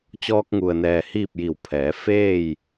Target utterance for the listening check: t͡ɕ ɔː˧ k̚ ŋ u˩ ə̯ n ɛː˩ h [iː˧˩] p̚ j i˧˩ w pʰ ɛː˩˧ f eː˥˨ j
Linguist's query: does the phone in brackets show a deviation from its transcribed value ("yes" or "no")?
yes